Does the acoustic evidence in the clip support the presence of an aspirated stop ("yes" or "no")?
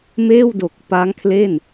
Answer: yes